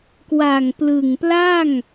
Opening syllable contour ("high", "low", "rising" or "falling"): low